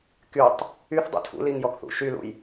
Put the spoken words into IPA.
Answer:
kytˤ | yθdˤṵ tʰṵliŋ jɔkθṵʃylṵj

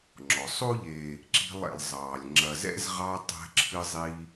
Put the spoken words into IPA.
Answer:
ŋ͡ǁɔ˩sˤo˥ʎeː˨ | ǁi̤˦lˠ ɛ̰˨lˠzˤɑː˩lʲ ŋ͡ǁɐ˨zɛ̰˥zʁɑ˦ tˤɛ̤˦ǁʰɨ˦zˤiː˦

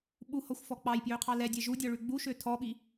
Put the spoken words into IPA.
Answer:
ɓuhɔxʷfɔ k͡pɑjpjøqʰɑ lɛdʲɛ ʒudʲɔɭʉ ɡ͡buʃø tʰɔɓi

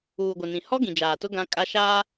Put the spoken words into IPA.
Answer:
uː˨ɡʷɪ˨nĩ˨hɔ˦ ɡĩ˨d͡ʒaː˨tʊ˦ ɡã˦ kʼa˦ ʃaː˦

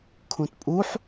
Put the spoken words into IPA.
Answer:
kʰũtpʼuħ

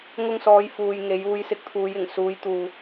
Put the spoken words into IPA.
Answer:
ŋʊ˧ŋsɔː˨˧j fuː˨jŋe˨˧j uː˨˧jsɪ˨˥k̚t̪ʰuː˨˧j ɪ˨˩ŋsuː˨˧j t̪uː˨

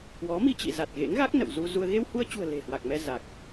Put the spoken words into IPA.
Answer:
kwɔ˨˦ mi˧t͡ɕḭ˧˨ za˨˩t̚ɣḛ˧˥ŋɣa˦˥k̚ nə̰˧˨wzu˧zu˧ə̯ ɣe˧whu˧ə̯t͡ɕṳ˨˩ə̯ le̤˨˩ hwa˨˩k̚mɛ˧ za˨˩k̚

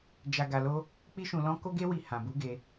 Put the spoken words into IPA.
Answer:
d͡ʒa˧ɡa˧lo˦ | k͡pi˦ʃũ˧ lɔ̃˦ ko˦ɡe˦wi˧ hã˨bu˨˦ɡe˧

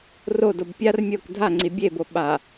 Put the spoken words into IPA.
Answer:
rodob pʲar mʲok dʱaŋ͡ǀi bʲebo ɓa

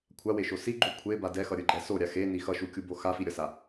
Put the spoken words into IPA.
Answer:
kʷʰaweʃo siɡ͡ǃu kʷʰeba dɛxʌɾʲɯɡ͡ǃɛ soɾʲa xeni xʌʃukʲubo xafiɾʲʌsa

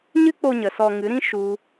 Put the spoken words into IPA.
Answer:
ɲɨ˦k͡po˧ɲə˨ sɔ˧ŋɨ˨˦ɾĩ˦ ʃu˦

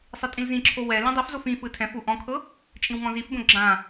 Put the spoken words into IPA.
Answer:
sˤitʼĩlzĩǁʰo wɛ lĩdˤifzof ĩ fɯtʰɛ̃fu ʔɔ̃kʰɤ | t͡ʃʼĩwŋɔ̃zifbõ ɡ͡ǁã

